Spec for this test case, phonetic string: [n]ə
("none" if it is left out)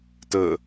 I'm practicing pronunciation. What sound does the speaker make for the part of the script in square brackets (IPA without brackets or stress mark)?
t